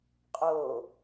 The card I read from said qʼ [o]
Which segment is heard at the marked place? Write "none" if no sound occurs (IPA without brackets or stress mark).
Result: o